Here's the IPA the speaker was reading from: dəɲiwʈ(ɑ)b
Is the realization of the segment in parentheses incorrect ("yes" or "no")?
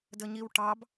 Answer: no